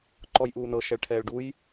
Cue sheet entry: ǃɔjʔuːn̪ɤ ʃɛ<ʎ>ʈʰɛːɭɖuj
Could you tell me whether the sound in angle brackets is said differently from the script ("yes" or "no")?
yes